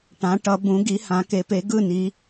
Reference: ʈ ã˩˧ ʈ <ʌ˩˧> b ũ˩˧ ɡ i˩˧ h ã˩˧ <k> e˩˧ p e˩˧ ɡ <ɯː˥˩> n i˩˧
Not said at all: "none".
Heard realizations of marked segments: ʌ˩˧, k, ɯ˥˩

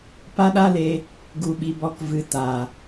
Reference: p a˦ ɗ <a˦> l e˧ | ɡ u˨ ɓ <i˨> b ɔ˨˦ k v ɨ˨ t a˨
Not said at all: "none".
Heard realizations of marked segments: a˦, i˨

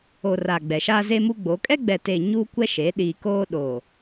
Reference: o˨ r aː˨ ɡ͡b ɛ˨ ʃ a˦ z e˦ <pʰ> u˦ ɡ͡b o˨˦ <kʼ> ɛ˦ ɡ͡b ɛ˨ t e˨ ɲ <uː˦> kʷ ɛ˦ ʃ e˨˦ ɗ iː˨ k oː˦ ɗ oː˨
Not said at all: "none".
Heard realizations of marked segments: m, kʼ, uː˦

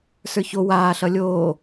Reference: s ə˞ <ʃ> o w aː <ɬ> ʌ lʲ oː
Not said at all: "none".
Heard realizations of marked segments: ç, ɬ

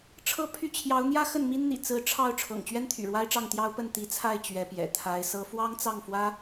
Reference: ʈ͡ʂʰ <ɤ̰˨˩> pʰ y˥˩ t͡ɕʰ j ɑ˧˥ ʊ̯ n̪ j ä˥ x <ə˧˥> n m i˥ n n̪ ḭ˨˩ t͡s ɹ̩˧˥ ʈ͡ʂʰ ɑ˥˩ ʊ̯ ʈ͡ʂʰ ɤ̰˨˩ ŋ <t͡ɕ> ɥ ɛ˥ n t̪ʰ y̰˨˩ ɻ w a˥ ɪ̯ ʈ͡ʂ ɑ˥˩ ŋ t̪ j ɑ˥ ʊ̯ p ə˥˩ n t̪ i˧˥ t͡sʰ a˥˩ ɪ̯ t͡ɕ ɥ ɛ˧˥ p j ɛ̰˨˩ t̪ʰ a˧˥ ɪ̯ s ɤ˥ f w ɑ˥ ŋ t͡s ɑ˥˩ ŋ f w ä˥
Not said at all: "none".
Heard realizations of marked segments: ɤ˥, ə˥˩, t͡ɕ

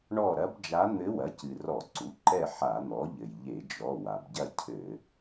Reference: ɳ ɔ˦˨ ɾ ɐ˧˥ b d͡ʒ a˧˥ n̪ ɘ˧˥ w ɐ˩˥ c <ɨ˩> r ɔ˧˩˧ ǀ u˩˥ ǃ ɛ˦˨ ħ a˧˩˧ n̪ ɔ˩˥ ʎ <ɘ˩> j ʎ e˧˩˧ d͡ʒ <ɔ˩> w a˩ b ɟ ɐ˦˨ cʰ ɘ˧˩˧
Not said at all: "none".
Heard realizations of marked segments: ɨ˩, ɘ˩, ɔ˩˧˩

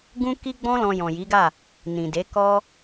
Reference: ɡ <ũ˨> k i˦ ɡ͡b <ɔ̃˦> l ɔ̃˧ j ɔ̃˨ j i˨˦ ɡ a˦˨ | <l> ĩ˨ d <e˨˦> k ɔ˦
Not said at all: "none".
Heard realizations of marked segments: ũ˦, ɔ̃˦, n, e˨˦

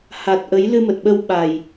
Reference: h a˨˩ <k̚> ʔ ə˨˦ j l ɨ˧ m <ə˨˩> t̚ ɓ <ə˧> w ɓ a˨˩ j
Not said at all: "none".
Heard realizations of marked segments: t̚, ə˨˩, ə˧

